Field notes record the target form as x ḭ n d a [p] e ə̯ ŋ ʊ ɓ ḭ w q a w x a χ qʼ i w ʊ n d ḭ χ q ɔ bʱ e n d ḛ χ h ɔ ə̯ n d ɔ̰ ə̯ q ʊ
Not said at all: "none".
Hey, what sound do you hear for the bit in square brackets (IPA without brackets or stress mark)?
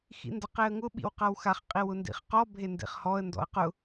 q